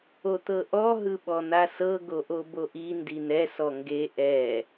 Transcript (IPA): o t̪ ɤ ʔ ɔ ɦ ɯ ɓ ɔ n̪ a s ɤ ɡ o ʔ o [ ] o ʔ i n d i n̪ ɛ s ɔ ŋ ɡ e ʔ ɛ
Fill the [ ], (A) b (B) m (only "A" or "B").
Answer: A